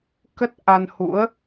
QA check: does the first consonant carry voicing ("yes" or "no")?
no